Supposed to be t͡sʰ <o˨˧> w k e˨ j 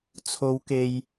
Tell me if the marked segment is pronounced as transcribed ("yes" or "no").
yes